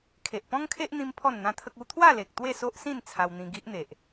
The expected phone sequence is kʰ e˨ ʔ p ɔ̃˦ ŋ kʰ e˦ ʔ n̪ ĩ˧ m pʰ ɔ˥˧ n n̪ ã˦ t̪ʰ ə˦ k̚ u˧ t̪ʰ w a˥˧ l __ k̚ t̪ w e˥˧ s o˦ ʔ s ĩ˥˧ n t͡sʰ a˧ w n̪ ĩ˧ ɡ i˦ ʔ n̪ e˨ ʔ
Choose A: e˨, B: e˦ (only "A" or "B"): A